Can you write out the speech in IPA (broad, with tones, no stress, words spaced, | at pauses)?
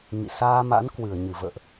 ŋḭ˧˨ saː˧ma̰˧˥n kwɨ˧˩ə̯ɲɨ˧˩və̰ː˧˨ʔ